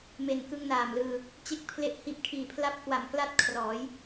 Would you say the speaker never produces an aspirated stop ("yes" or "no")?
no